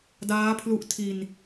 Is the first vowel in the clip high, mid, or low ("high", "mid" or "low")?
low